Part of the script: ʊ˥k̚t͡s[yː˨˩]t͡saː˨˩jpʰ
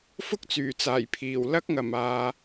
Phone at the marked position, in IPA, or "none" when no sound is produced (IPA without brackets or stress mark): yː˨˩